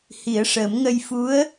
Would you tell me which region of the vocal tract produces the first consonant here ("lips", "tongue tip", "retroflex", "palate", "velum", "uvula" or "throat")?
throat